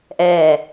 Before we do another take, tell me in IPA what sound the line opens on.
ʔ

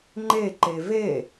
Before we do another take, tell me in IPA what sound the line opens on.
ŋ͡ǃ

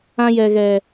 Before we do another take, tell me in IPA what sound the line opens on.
ã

